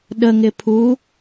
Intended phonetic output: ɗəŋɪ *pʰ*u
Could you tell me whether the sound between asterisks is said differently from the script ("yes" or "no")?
no